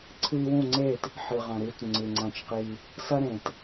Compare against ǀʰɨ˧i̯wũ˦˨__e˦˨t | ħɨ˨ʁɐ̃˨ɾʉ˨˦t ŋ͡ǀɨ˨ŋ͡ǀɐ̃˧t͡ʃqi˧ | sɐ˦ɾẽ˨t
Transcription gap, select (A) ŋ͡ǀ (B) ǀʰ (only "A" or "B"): A